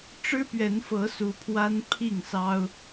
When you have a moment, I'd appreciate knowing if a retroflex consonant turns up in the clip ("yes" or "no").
yes